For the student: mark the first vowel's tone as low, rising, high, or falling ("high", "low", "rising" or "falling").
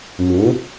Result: rising